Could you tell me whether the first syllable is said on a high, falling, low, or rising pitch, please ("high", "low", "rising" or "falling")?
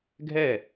falling